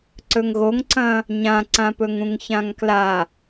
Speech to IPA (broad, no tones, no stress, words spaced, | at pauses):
ǀɵŋɣoŋǀɐ̃ | ɲãǀãpɵŋ ũŋçãŋkla